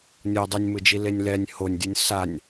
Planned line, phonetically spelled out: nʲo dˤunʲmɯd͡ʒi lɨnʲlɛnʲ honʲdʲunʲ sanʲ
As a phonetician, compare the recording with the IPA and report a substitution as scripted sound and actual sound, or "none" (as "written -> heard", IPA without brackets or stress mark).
ɨ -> e